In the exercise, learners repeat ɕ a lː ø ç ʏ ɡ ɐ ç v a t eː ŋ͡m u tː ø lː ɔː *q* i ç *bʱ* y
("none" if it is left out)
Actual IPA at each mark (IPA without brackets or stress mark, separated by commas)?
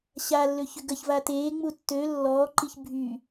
ǃ, bʱ